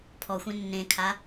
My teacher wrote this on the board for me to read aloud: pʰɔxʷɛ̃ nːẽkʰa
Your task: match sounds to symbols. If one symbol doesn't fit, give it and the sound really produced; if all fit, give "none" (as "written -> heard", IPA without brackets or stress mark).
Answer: none